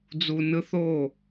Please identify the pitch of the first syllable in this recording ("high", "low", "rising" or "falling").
high